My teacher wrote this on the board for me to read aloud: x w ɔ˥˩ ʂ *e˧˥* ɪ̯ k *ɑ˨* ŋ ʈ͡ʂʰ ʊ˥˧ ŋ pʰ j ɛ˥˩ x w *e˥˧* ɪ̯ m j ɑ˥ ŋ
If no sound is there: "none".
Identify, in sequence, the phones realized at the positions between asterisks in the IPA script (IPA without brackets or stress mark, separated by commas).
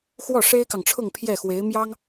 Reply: e˥, ɑ˨, e˧˥